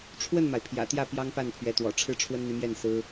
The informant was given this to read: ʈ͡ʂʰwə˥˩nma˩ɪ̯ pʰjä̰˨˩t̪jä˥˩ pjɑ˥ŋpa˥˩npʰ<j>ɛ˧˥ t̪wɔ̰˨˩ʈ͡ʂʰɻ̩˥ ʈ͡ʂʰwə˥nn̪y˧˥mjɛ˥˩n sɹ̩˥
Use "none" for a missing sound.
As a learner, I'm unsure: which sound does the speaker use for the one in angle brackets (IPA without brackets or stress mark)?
ɥ